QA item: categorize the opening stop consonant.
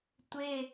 plain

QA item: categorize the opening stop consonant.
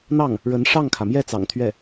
aspirated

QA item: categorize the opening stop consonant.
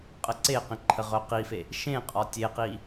ejective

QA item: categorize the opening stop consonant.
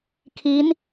aspirated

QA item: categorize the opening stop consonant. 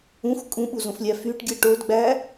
ejective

